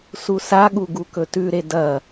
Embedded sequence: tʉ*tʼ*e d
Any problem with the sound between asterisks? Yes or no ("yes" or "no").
yes